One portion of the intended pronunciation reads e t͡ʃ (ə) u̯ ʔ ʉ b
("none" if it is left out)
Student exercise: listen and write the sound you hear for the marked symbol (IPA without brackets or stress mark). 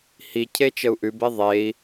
ə